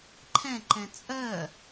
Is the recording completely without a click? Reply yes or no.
no